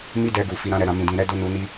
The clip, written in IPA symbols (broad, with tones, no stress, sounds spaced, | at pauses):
m i˦ d ɛ˧ ɡ u˨ f i˧ ɾ ã˦ ɾ ɛ˧ ɾ ã˧ m ĩ˨ d ĩ˨ ɾ ɛ˧ d o˧ n u˧ n i˧